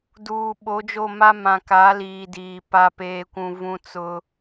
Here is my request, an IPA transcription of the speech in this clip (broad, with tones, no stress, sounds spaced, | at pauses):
d uː˨ ɓ o˨˦ d͡ʒ o˦˨ m a˦ m ã˨ k a˨˦ l iː˨ d iː˨ p a˦ p eː˦ kʷ ũ˦ v ũ˦ t͡s ʊ˦